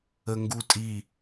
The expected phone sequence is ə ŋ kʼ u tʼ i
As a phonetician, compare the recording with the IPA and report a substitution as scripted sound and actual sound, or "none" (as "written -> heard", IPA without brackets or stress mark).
kʼ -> ɡ